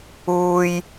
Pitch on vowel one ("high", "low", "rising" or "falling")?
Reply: high